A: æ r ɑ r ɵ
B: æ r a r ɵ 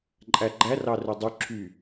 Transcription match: A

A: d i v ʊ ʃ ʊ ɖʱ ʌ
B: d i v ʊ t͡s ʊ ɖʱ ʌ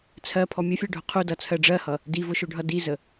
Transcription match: A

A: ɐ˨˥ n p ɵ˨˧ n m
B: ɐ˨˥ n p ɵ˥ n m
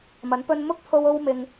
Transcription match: B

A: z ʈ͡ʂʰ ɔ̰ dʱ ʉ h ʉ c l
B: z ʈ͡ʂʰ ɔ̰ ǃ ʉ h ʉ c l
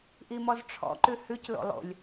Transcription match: B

